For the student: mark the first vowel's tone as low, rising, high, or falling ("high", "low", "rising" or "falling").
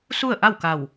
falling